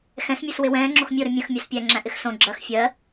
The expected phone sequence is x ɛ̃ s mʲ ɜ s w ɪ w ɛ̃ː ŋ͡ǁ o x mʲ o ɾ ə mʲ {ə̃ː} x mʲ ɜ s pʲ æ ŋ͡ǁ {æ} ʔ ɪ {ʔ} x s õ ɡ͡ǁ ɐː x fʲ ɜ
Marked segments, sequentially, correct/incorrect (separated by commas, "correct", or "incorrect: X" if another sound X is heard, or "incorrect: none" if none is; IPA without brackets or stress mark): incorrect: ə̃, incorrect: æ̃, incorrect: none